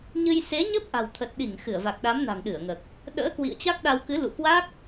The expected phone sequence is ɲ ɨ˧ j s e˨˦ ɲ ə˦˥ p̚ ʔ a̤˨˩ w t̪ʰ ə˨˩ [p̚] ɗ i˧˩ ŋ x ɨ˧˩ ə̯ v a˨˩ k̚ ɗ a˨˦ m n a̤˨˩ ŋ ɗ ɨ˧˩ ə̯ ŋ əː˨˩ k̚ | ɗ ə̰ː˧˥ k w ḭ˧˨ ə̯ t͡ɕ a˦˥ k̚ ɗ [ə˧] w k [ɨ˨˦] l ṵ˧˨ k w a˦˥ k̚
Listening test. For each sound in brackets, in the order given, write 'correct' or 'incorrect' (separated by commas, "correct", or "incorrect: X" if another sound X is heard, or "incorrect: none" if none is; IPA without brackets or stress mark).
incorrect: t̚, incorrect: a˧, correct